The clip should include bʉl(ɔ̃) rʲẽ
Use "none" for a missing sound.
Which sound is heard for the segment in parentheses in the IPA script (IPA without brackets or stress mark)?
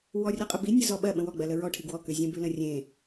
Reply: ə̃